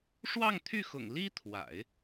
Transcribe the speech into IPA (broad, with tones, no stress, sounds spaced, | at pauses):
ʂ w ɑ˥˧ ŋ t̪ʰ y˥˩ x ʊ̰˨˩ ŋ l i˥ t̪ʰ w a̰˨˩˦ ɪ̯